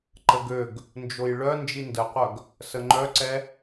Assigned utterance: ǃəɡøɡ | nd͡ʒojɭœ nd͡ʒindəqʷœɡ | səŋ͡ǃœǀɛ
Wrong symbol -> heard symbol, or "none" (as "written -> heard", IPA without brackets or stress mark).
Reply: none